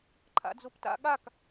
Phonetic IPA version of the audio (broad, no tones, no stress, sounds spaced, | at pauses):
ǃʰ a̰ d͡z o p t a̰ ɠ a k